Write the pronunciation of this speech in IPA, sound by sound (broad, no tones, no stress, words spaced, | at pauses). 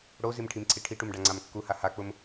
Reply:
ɽozim ʈʰimǀʰiʈʰiʈum ɖaŋ͡ǀamkːuha hak͡pʊm